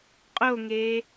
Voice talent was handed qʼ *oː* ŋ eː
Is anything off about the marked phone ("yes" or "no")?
yes